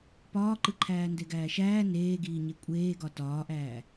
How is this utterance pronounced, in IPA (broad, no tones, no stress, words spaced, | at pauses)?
pɒːǃɯǃʰæː ndeɡæːʃæː neːɡiːɲe kʷʼeːɡɒ tɒːʔæː